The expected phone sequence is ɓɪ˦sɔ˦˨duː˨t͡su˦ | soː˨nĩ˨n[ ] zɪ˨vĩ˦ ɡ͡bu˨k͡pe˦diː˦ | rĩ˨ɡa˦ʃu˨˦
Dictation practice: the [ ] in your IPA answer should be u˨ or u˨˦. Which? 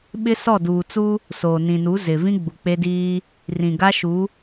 u˨˦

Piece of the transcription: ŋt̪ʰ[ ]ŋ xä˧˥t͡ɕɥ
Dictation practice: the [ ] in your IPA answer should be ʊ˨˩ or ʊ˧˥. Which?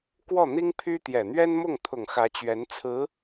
ʊ˨˩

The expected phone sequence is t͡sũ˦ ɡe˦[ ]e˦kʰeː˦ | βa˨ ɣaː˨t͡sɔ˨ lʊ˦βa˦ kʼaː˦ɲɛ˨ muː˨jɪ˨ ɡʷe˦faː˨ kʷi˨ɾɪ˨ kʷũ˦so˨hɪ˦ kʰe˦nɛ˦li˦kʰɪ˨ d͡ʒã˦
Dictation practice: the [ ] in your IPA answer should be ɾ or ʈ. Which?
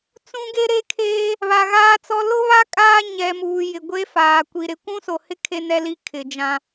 ɾ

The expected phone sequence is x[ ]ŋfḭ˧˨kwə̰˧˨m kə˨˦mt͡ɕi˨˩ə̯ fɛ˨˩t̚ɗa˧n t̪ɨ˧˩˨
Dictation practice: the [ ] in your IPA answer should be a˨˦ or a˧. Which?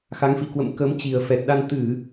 a˨˦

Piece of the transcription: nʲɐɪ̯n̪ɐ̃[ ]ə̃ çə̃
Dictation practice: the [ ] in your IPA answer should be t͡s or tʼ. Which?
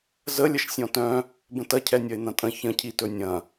tʼ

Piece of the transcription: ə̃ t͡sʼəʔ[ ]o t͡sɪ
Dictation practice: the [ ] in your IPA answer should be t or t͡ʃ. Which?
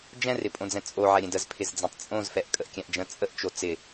t͡ʃ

